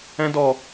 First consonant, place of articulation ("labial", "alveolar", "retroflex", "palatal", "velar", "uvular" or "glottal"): alveolar